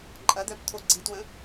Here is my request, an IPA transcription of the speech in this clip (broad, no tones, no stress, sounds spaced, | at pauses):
ǃʼ ɐ d̪ œ b t̪ʰ o ɡ͡ǀ i t w ə̃